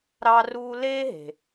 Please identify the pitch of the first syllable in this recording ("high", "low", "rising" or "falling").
high